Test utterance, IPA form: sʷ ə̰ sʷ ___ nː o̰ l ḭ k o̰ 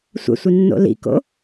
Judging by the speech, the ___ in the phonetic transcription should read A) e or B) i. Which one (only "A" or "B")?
B